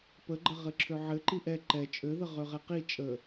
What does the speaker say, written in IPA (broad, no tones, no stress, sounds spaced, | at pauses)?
p ə ɡ͡ǃ ə ʁ ɘ ǁʰ ø ʕ ɘ ǃ i ʔ ɛ ǃ ɛ t͡ʃʼ ø ð ə ʁ ø ʁ ɛ q i t͡ʃʼ ə